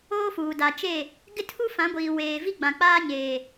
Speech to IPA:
oː˦fuː˨ da˨t͡ʃe˦˨ | ɡɪ˦tʰu˦fã˨˦ɡʷiː˨ weː˨vi˦ ɡ͡bã˨k͡paː˦ɲeː˨

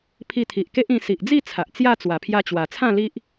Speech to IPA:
pʰi˧t̪ʰi˨ʔke˦ʔ ĩ˧ si˨ʔd͡zi˥˧ t͡sʰa˨ʔt͡sja˥˧ t͡swa˨˩pʰja˧t͡ɕwa˨˩t͡sʰã˥˧ li˦ʔ

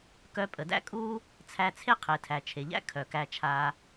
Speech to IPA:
kœ˧pʼə˨dæ̰˦kʼuː˦ | t͡sʰæ˧t͡sʰe˦ qʰe˨tʰæ˨t͡ʃʰe˨ʎæ̰˦ kʰœ˨kæ˧t͡ʃʰaː˧

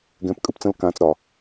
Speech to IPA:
ɡɛ̃˨˦pkʼɯ˨pt͡sə̃˧l kãː˨t͡sɾɒ˨

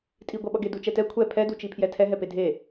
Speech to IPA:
tʼiɡʷaɓʌɡe dut͡ʃɛtɛ kʷʰɛ pʰɛdut͡ʃipʰjɛ tʰɛɦɛ pedʱe

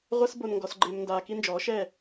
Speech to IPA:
ʁʷɛ˦s bo˧nŋɡɔ˧sɡ͡ǃeː˧mndaː˧ ki˦nd͡ʒɔː˨˦ʃɛː˦˨

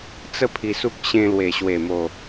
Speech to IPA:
t͡sə˦ pʰi˧su˦k̚ ɕẽ˧lwe˨˩ɕwe˨˩mo˨˩

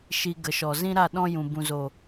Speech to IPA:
ʃi˧ɡə˨ʃɔ˨ zĩ˦ɾa˦˨ ɗɔ̃˦ jũ˨ bũ˨zo˨

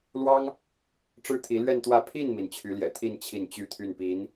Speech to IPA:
lwɑ˥ŋ | ʈ͡ʂɻ̩˥t̪ʰi˧˥lɥɛ˥˧nt̪wä˥˧ pʰi˥˩nmi˩n t͡ɕʰy˧˥ljɛ̰˨˩t̪ʰi˥˧n t͡ɕʰi˥˩nt͡ɕy˥t̪ʰy˥˩npi˧˥n

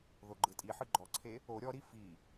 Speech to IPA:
ðoɡ͡ǃɯtʼiħɯ ɡ͡ǃɔǀʰe | o ɾʲɔɾi fi

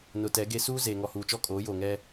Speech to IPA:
nʊ˨ tɛ˨˦ɡe˦ suː˦ zeː˨ŋɔ˨huː˨t͡ʃɔ˦ kʼoː˨˦joː˨ŋɛ˦

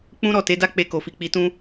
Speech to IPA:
k͡pũ˦ ɾɔ˦˨te˨˦da˦ k͡pe˧ko˨fi˨ k͡pi˨tũ˧

